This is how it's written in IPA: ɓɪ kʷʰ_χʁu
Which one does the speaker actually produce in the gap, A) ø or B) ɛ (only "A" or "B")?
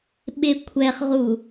B